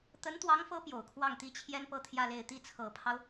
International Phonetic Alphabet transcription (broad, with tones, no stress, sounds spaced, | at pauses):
t̪ ə˧˥ n t̪ w ɑ˧˥ ŋ f ɤ˧˥ p j o˨˩ ʊ̯ kʰ w ɑ˥˩ ŋ t̪ i˥ t͡ɕʰ j ɛ˥ n p ɤ˥˧ t̪ʰ j ä˥˧ l e˥˧ ɪ̯ t̪ i˥˩ t͡sʰ ɤ˨˩ pʰ ɑ˦ ʊ̯